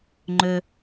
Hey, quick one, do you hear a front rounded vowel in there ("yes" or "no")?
yes